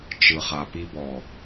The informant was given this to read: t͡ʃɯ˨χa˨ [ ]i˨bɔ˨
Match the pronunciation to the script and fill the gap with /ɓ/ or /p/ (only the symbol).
p